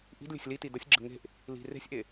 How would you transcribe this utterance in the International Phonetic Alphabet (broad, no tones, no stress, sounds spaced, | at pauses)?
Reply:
ʔ i̤ d lʲ ɛ̤ sʲ l i t i d ə sʲ ɡ͡ǁ ə̤ ŋ e̤ ʔ | l i̤ r e̤ sʲ ʔ e